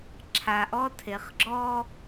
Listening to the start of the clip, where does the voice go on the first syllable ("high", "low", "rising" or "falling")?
low